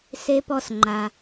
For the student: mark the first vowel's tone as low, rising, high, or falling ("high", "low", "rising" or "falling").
low